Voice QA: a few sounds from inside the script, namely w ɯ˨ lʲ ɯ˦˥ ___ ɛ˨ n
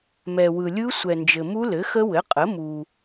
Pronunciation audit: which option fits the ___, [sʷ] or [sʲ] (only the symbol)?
sʷ